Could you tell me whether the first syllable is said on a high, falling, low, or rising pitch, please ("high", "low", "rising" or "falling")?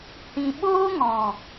low